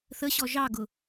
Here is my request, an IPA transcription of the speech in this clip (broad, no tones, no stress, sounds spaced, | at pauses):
θ ə ɕ ɔ ʒ ɑ ɡ ʊ